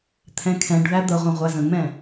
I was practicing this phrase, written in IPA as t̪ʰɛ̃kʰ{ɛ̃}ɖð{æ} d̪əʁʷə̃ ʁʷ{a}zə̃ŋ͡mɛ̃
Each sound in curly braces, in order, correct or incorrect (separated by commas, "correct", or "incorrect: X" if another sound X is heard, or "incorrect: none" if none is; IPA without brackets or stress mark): correct, correct, incorrect: æ